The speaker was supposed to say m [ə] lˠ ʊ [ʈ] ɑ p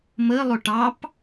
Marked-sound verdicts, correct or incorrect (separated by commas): correct, correct